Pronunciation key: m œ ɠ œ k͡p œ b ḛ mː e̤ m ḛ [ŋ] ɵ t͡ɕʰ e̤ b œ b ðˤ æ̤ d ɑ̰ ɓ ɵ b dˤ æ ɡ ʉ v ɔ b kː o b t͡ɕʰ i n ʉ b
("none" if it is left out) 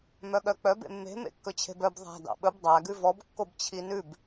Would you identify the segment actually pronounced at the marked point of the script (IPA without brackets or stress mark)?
kː